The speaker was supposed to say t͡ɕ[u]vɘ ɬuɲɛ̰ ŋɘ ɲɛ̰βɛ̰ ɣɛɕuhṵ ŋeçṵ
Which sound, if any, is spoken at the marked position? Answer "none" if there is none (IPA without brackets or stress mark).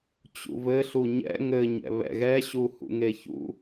ṵ